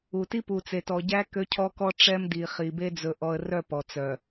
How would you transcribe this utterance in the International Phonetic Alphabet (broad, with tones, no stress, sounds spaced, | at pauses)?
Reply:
u˨ t i˦ p u˨ t͡s e˨ t ɔ˨ ɟ æ˦ k ø˦ cʰ ɔ˦ k ɔ˦ ʈ͡ʂ ɛ˦ m d i˨ χ i˨ b e˦ d͡z ɵ˨ ʔ ɔ˨ ə̯ r œ˦˨ p ɔ˨ t͡s œ˨